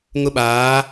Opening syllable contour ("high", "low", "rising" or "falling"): high